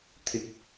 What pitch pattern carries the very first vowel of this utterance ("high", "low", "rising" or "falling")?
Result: low